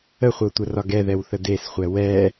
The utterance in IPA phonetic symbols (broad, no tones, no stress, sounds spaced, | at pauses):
ə χʷ ɤ tʷ ə r ɒ ɡ ɛ ð ɛ w θ ə d e s χʷ ɛ w ɛ